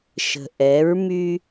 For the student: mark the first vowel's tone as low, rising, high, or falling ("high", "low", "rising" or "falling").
low